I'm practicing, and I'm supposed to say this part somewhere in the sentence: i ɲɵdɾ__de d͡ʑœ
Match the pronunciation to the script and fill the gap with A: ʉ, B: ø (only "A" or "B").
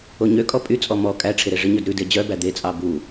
A